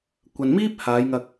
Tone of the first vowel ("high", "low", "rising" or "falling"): low